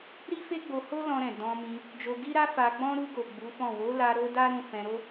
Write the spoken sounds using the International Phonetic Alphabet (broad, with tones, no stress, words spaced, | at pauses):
ɾi˦fe˦ɡ͡bo˧ho˦ lɔ̃˧ɾɛ̃˨ dɔ̃˧mĩ˧ | d͡ʒo˧ɡi˦ɾa˦ fa˧ɡ͡bɔ̃˦ ɾu˧ɡo˨ ɡ͡bu˨˦fɔ̃˦˨ wo˨˦la˧ ɾo˦da˦ ɾũ˦˨fɛ̃˧ɾo˦